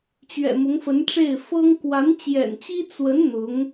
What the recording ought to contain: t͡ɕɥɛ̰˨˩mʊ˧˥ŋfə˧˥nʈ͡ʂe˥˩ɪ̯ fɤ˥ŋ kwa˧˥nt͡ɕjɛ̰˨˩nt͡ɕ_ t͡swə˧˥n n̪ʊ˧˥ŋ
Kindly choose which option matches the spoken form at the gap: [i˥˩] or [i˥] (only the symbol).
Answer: i˥